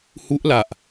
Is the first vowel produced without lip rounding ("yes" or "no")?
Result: no